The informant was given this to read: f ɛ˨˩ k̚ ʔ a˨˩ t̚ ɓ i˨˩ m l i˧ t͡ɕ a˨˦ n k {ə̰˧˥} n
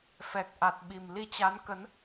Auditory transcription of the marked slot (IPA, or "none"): ə˨˦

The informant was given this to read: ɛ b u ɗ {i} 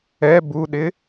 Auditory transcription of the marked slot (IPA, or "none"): ɪ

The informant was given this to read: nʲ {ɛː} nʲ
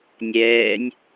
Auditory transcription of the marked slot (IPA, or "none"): ɛː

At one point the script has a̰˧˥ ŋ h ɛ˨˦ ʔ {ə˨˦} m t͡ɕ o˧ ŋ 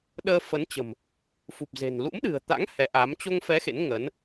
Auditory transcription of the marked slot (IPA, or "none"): a˨˦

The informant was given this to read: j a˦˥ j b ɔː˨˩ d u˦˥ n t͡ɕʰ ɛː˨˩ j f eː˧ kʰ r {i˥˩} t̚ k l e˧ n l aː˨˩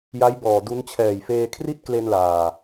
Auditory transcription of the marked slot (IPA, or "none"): i˥˩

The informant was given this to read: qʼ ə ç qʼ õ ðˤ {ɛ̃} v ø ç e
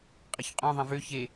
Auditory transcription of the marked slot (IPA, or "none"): ɛ̃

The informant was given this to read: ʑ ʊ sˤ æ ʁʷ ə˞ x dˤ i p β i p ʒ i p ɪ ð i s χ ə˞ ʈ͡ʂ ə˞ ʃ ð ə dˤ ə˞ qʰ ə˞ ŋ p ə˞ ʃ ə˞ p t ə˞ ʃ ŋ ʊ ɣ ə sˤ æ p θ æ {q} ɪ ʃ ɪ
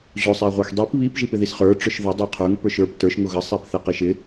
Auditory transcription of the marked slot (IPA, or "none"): q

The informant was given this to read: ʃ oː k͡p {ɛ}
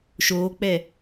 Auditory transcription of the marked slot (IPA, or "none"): ɛ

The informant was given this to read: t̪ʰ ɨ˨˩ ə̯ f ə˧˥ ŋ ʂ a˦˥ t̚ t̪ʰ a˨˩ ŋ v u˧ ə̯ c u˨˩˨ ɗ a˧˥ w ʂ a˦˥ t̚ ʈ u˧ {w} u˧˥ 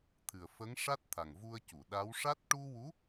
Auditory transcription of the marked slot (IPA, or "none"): w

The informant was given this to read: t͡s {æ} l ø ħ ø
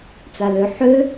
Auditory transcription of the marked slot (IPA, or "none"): a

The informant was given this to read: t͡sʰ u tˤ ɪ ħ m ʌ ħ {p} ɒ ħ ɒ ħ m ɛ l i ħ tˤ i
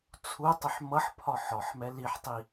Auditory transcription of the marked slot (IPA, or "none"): pʰ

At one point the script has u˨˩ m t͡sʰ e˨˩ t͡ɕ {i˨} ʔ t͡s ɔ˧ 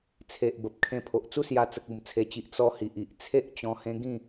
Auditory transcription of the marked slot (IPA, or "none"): i˨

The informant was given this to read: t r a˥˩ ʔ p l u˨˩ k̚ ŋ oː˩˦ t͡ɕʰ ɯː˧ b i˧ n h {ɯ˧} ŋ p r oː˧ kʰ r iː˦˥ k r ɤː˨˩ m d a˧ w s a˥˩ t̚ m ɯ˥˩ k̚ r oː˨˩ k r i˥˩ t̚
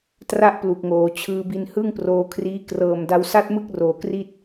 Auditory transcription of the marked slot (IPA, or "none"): ɯ˥˩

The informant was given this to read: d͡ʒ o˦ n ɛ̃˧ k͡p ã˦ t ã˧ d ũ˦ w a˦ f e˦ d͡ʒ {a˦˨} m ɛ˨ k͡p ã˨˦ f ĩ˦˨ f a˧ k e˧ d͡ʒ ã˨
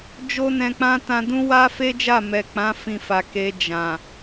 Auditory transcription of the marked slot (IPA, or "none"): a˦˨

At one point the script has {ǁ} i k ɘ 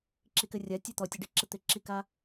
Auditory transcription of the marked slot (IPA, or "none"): ǁ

